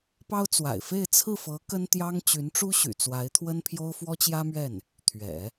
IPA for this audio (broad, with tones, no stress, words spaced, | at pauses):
pɑ˥ʊ̯ t͡swa̰˨˩ɪ̯fe˥˧ɪ̯ t͡sʰɹ̩˥˩fɤ˧˥ kə˥nt̪jɑ˥ŋ t͡ɕy˧˥nʈ͡ʂu˥ɕy̰˨˩ t͡swa˧˥ɪ̯t̪ʰwə˥npʰjo˥ʊ̯ fwɔ˥t͡ɕjä˥mɥɛ˥˩n | t̪ʰɥɛ̰˨˩˦